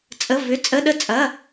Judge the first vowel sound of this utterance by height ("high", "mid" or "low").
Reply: mid